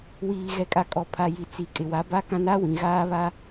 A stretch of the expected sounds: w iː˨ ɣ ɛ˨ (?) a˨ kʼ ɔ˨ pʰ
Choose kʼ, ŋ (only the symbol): kʼ